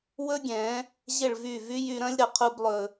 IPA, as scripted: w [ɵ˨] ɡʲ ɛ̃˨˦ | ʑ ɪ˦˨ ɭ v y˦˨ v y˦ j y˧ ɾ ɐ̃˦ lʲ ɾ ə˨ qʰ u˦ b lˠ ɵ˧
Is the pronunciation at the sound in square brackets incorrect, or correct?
incorrect